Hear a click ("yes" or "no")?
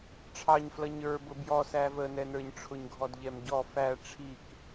no